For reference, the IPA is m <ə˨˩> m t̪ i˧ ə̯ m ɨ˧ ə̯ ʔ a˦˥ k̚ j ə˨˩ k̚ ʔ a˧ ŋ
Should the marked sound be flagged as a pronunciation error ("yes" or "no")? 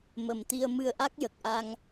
no